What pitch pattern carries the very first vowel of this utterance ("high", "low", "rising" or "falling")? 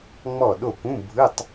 falling